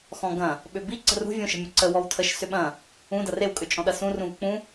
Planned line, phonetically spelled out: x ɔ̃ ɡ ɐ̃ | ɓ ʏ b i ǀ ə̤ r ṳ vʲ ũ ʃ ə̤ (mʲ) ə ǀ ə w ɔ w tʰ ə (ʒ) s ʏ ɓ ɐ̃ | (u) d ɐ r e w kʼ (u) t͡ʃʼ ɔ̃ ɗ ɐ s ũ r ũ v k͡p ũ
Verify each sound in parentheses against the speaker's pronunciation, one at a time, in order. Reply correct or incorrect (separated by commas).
correct, incorrect, incorrect, incorrect